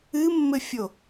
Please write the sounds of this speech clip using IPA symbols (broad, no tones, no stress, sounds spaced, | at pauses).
ɨ mː ɘ fʲ o